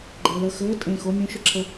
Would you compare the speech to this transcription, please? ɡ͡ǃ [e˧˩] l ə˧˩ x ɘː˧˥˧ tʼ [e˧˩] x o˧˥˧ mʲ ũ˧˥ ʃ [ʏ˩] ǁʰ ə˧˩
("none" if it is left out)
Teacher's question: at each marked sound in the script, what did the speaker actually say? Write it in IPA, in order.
e˩, ẽ˧˩, ʏ˩

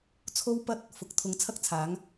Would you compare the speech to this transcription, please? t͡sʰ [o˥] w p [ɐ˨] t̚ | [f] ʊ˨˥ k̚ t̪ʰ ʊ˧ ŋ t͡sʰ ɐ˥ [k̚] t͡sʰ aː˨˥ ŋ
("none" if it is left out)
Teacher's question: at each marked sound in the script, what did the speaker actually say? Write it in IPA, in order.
o˧, ɐ˧, f, k̚

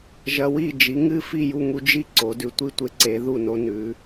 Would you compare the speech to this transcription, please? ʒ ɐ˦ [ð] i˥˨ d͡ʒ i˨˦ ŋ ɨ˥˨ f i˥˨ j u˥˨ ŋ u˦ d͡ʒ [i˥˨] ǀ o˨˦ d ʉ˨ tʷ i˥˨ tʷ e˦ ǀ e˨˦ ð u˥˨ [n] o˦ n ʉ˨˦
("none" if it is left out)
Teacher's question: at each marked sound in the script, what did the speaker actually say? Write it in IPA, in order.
w, i˥˨, n

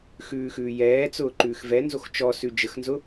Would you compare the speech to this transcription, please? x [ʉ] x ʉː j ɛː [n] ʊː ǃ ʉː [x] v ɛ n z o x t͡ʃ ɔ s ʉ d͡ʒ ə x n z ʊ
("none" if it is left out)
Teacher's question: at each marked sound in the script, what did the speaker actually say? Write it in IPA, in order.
ʉː, t͡s, x

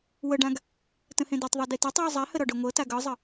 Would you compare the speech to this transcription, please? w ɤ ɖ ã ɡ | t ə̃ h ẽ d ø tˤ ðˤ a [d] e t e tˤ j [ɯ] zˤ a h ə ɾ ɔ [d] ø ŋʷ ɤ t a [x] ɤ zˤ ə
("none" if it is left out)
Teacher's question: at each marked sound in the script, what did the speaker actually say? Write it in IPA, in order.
d, ɤ, ɖ, ɡ

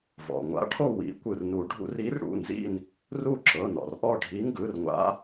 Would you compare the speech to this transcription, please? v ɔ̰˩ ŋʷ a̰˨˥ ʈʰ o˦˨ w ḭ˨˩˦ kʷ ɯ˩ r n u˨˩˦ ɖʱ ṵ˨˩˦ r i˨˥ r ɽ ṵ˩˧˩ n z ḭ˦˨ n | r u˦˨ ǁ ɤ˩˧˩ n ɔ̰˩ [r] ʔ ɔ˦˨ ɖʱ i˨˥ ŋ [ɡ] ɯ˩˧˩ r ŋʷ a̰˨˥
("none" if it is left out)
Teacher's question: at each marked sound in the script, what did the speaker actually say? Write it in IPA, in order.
r, ɡ

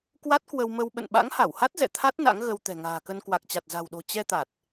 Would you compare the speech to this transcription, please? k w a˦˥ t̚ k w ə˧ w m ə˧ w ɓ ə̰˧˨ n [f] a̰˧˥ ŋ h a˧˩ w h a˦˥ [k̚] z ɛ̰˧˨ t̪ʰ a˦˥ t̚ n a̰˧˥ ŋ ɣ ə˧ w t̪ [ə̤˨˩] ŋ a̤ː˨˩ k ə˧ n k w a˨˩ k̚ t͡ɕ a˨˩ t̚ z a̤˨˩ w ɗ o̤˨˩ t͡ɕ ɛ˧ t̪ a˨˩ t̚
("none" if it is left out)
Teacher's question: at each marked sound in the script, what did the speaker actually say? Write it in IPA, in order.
ɓ, t̚, ɛ̤˨˩

